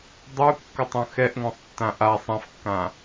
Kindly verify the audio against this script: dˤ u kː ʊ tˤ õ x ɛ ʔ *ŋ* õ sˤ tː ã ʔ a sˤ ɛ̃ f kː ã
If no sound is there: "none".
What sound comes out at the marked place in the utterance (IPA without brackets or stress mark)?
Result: ŋ